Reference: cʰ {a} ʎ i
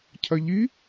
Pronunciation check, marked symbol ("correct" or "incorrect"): incorrect